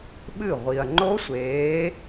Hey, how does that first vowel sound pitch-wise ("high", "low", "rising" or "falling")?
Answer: falling